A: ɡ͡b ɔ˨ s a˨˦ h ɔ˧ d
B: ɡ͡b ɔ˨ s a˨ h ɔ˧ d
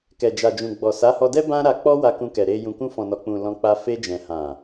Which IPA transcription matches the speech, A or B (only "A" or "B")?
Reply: A